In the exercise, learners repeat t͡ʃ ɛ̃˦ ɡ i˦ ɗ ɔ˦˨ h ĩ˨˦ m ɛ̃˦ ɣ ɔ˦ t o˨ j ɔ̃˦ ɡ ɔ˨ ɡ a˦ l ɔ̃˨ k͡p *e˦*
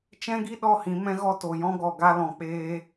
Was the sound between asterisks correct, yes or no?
no